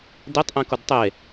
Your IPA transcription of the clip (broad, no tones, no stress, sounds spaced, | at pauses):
d e tˤ ʔ ẽ k ʊ d tˤ e